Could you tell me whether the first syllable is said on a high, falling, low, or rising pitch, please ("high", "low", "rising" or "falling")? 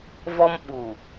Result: high